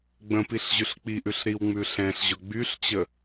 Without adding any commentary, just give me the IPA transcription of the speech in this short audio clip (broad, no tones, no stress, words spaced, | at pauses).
ɡ͡bə̃piɬ ʑʉɬk͡piʔʉɬ ɾiwŋ͡mʉ ɬɛ̃ɬʑʊ ɡ͡byɬt͡ɕə